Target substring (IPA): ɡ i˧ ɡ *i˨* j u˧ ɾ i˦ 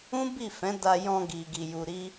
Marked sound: incorrect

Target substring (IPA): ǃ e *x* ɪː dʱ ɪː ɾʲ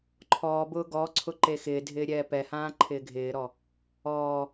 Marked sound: correct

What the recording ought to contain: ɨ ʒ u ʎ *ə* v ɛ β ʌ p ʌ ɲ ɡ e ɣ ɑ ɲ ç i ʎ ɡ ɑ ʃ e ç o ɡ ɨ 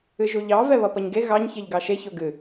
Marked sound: incorrect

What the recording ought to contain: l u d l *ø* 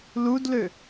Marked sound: correct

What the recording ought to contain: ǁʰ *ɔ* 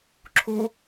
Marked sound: incorrect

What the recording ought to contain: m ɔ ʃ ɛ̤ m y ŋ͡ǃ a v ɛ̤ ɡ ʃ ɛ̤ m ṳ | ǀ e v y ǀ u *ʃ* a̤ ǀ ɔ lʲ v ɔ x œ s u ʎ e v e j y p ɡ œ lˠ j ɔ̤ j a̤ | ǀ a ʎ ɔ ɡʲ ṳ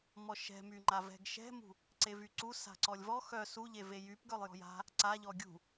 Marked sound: incorrect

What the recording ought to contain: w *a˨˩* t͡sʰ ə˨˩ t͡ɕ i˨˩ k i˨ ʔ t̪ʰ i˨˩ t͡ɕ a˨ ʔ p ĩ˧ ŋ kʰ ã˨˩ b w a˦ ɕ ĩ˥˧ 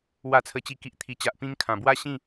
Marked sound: correct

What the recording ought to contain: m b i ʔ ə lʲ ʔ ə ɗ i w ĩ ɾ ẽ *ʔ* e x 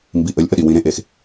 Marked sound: correct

